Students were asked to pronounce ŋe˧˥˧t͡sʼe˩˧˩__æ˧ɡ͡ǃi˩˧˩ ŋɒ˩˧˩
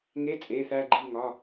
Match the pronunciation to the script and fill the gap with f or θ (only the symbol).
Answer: θ